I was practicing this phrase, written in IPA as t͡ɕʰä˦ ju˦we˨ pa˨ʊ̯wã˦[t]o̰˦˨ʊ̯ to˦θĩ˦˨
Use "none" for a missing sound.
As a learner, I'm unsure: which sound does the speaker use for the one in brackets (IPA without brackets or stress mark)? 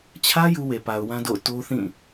d